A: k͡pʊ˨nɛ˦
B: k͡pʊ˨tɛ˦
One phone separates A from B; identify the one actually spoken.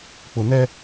A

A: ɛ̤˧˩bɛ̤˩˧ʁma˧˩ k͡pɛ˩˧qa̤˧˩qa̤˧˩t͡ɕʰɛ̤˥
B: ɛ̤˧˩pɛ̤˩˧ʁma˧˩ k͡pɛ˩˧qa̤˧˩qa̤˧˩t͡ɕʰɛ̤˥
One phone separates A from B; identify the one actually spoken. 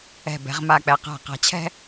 A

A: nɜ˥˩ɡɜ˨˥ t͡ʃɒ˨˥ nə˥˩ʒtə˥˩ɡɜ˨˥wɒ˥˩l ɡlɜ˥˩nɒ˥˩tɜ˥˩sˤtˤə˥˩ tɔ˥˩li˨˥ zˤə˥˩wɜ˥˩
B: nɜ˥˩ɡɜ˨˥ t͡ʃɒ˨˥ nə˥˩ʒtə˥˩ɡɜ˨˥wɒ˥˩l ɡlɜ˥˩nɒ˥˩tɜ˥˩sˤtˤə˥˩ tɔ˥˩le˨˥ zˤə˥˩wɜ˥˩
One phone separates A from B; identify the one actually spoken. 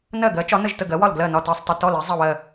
A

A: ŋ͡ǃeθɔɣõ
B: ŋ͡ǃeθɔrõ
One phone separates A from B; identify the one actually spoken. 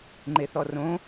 B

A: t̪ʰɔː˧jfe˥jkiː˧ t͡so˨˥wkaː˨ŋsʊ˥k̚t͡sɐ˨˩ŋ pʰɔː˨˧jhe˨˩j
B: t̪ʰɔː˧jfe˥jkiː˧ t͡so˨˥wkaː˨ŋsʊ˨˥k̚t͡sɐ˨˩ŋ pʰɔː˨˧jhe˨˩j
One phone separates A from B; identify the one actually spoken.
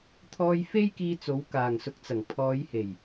B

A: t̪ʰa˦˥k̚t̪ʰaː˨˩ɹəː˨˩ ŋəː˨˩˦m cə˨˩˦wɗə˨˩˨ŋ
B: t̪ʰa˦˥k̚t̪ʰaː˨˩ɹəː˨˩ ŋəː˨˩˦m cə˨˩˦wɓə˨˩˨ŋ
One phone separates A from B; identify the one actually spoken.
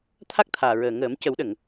A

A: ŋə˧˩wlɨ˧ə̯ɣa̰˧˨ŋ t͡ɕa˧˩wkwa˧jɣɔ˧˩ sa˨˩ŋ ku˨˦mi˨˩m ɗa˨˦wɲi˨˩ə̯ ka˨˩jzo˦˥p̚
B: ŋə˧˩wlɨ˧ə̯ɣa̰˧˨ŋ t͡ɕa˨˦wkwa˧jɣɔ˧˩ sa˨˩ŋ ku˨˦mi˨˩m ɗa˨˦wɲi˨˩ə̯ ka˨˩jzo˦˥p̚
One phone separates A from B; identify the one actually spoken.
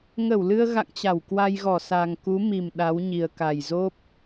A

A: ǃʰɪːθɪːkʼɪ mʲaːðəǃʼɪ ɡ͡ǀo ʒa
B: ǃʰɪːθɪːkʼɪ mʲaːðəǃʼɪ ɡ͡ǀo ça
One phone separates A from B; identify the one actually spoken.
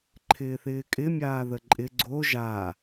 A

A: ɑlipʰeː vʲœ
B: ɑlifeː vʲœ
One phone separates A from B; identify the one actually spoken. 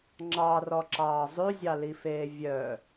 B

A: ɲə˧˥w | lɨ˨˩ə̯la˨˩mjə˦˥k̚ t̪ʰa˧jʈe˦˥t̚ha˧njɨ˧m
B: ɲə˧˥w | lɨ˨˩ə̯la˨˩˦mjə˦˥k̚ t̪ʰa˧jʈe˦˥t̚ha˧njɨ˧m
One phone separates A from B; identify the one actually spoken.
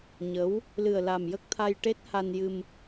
A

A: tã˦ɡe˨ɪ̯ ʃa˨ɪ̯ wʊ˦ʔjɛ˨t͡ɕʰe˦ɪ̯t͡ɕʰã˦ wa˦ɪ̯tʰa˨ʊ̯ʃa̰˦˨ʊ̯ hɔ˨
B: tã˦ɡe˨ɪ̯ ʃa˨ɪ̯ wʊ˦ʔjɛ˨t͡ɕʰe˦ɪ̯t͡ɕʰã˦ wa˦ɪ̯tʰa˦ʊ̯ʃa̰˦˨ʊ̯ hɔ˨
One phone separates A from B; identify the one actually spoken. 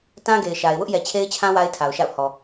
A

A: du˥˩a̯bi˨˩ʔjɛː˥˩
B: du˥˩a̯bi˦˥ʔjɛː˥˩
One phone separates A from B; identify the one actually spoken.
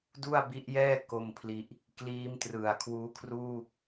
B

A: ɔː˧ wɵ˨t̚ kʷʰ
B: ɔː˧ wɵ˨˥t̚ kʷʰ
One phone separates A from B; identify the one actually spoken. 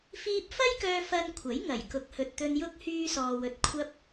A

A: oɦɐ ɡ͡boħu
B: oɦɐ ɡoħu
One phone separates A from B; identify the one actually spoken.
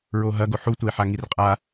B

